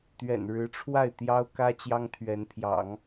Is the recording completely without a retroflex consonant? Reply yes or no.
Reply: no